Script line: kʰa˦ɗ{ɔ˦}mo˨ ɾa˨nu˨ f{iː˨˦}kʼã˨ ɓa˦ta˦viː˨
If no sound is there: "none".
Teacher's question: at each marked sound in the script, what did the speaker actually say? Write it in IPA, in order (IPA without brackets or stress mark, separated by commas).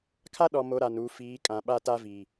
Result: ɔ˨, iː˨˦